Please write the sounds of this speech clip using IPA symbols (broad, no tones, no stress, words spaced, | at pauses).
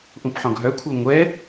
ʔũpħɔ̃ɡɦœkʷʰə˞ ŋʷɛ